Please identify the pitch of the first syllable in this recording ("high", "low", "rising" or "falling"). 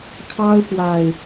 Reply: high